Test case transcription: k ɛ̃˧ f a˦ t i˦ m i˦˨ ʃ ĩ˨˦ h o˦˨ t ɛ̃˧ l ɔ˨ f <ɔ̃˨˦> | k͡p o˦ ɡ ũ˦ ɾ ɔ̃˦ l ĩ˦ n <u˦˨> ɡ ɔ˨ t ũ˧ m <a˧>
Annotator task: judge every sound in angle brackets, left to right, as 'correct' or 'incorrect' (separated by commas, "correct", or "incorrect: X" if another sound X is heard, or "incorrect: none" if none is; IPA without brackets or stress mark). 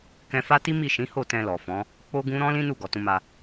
correct, correct, correct